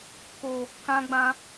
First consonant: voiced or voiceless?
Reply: voiceless